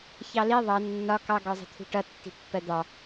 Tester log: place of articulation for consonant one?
palatal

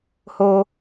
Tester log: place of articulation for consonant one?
glottal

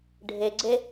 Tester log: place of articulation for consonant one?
retroflex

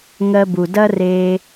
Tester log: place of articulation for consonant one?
velar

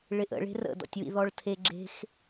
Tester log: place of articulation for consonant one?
retroflex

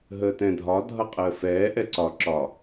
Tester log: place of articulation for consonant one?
glottal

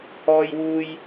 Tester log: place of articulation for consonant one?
glottal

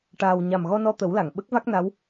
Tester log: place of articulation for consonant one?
retroflex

